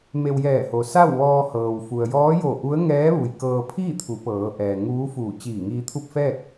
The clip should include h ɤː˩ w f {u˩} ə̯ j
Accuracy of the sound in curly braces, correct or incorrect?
correct